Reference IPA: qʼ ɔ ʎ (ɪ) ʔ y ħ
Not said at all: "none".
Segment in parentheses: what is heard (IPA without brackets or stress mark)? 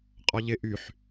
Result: ɪ